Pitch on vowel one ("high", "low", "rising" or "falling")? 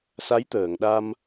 rising